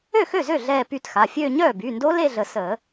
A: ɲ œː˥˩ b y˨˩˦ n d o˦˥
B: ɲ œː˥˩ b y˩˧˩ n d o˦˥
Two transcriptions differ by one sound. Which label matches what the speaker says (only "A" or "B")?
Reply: B